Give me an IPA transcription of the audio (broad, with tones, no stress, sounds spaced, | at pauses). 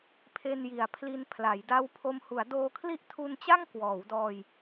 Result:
pʰ e˧ n j i˩˦ a̯ pʰ l i˧ n pʰ l a˩˦ j d a˦˥ w pʰ o˧ m h u˩˦ a̯ d oː˧ kʰ l i˥˩ ʔ tʰ u˧ n t͡ɕ a˥˩ ŋ k w ɔː˩˦ w d ɔː˧ j